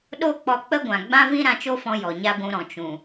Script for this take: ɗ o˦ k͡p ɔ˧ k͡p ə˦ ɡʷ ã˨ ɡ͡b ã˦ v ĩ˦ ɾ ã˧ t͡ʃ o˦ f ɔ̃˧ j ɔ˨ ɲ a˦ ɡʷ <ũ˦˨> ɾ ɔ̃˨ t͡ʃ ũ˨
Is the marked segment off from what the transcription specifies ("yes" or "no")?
yes